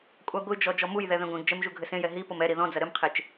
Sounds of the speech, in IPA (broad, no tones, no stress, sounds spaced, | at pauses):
kʷʼ a ɡʷ ɨ d͡ʒ ɔ d͡ʒ ɔ m u j ð ɛ ð ẽ ɡʷ ẽ ɡ d͡ʒ ɛ m ʒ u ɡʱ ɘ s ẽ j ɛ ɦ i p o m ɛ ɾ i ð ɔ̃ d͡z ɐ ɾ ɘ m qʰ e t͡ʃ